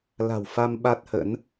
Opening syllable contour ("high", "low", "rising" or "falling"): low